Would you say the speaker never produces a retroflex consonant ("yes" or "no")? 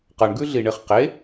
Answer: no